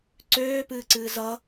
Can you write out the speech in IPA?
ǀ øː p ɨː ǀ ɨː z ʌ

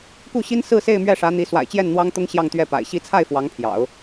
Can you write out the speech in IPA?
k u˥˩ ɕ i˥ n s ɹ̩˥˧ s e˥˧ ɪ̯ m ɥ ɛ˥˩ ʂ ä˧˥ n̪ i˧˥ s w a̰˨˩ ɪ̯ t͡ɕ j ɛ˥˩ n n̪ w ɑ˥ ŋ t̪ ʊ˥ ŋ ɕ j ɑ˥˧ ŋ t̪ ɥ ɛ˥˩ p a̰˨˩ ɪ̯ ɕ i˧˥ t͡sʰ a˥˩ ɪ̯ f w ɑ˧˥ ŋ pʰ j ɑ̰˨˩˦ ʊ̯

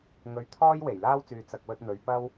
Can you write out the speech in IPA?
ŋ ɵ˨˧ ɥ t̪ʰ ɔː˥ j w e˨˩ j l aː˥ w t͡s yː˨ t͡s ɐ˨ k̚ w ɵ˧ t̚ n̪ ɵ˨˧ ɥ p ɐ˥ w

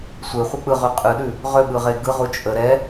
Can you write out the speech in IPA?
sʷ e χʷ ɛ k͡p ɯ ʁ ʉ qʼ ɯ ɗ ʉ | ʁ ø ɓ ɯ ʁ e ɡ ɯ ʁ u t͡ʃʼ ə ɾ ɛ

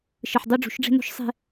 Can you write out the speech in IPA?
ʃ ɯ˨ ħ dˤ ø˦ ɖ͡ʐ ṳ˨˦ ʃ ɖ͡ʐ e̤˦ n o̤˦ ʃ sˤ e̤˦

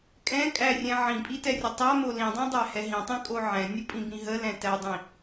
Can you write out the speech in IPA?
kʼ ɛ̃ kʼ æ rʲ ɛ̃ ʕ ĩ pʼ i t ɛ rʲ ə tˤ a m o l ĩ dˤ ɛ̃ dˤ æ h ɛ ɦ ĩ tˤ ĩ kʼ o ʕ ɛ̃ nʲ o pʼ ĩ b ĩ ɦ ə l ɛ̃ t æ dˤ ĩ

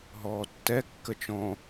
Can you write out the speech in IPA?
ɦ ɔː tː ɛ kː ə t͡ʃ ɔ̃

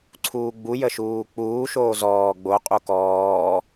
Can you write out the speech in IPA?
ǀʰ uː ɡ͡b u j ə ʃ uː k͡p uː ʃ oː z ɔː ɡ͡b o qʼ u k ɔː

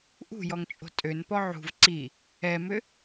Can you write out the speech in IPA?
ʔ ṳ j ɔ ŋ t͡ʃʼ o̤ tʼ ø n p ɔ ʕ ṳ v ǀ i | ɛ m ʏ

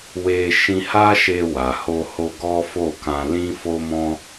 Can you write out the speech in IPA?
w e˧ ʃ ĩ˧ h a˦ ʃ e˧ w a˨ h o˧ h o˧ ɡ ɔ˦ f o˦˨ k ã˧ l ĩ˦ f o˦ m ɔ̃˦

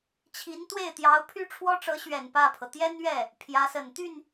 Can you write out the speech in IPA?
t͡ɕʰ i˧˥ n t̪ w e˥˩ ɪ̯ t̪ j ɑ˧˥ ʊ̯ pʰ y˥ ʈ͡ʂʰ w ɔ˥ ʈ͡ʂ ɤ˧˥ ɕ ɥ ɛ˨˩ n p ä˥˩ pʰ ɤ˩ t̪ j ɛ˥ n ɥ ɛ˥˩ | pʰ j ä˧˥ s ə˨˩ n t̪ y˥˩ n

